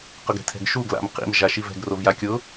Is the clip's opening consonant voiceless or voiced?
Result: voiceless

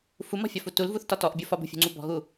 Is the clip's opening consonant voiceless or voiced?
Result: voiceless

